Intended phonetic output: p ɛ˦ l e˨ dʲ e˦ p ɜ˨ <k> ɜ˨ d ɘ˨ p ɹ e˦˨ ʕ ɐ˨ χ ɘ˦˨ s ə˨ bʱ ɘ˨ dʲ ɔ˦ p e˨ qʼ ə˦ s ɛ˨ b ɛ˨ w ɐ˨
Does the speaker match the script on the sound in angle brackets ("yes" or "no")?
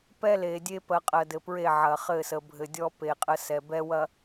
no